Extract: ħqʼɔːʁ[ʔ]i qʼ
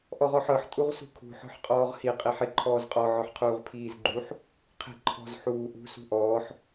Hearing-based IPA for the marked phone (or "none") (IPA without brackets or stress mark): h